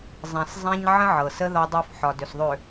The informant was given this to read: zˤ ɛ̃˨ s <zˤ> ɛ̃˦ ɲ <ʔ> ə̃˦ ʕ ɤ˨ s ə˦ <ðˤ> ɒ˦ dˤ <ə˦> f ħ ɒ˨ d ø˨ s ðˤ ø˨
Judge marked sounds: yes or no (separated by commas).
yes, no, no, no